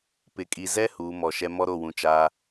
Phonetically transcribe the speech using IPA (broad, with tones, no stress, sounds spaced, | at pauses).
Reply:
p ɪ˨ kʼ i˨ z ɛ˦ h uː˨˦ m ɔ˨ ʃ ɛ˦ m ɔ˦ ɾ o˦˨ w ũ˨ t͡ʃ aː˦